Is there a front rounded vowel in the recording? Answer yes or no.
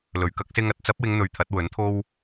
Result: no